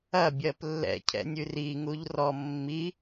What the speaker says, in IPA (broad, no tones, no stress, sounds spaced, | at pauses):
ɐ bʲ ɜ p lː ɛ̰ cʰ ɛ̰ nʲ ʉ r i ŋ u ʎ r ɔ mː i